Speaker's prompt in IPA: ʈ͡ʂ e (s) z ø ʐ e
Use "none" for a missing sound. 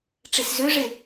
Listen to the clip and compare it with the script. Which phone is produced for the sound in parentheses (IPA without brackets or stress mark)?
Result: s